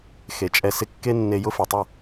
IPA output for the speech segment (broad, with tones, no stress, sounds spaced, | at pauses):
x e˨ t͡ʃʼ ɛ˧ s ɪ˧ kː e˦ nː e˧ j ʊ˦ f e˨ tˤ ʊ˦˨